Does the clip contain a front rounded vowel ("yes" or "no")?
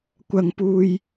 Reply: no